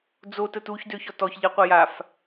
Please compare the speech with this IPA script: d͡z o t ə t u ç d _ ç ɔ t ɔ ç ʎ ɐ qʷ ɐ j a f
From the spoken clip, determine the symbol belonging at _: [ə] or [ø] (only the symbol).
ø